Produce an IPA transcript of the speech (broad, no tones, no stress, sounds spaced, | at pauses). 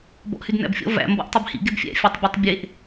b ɔ̰ ʔ h y d n æ̰ b fʲ ɔ̰ v æ̰ m b ɔ̰ ʔ tˤ i b h ḭ ɡ e b fʲ æ̰ fʲ ɔ tˤ bʲ œ tˤ bʲ e ʔ